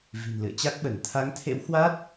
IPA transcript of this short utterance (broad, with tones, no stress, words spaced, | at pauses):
vi̤˨˩nlɨ̰˧˨ə̯ t͡ɕa˦˥k̚ɓə˧˩n t̪ʰa˨˦ŋt̪ʰḛ˧˥whwa˦˥t̚